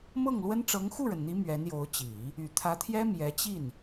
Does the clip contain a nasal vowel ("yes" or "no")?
no